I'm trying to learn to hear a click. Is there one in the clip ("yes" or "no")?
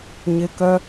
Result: no